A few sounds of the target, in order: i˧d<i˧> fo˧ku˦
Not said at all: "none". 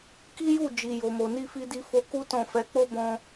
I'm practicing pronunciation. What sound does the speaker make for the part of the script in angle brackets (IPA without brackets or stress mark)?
i˧